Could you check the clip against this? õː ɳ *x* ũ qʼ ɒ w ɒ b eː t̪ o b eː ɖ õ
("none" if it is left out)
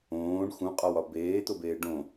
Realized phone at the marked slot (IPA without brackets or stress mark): x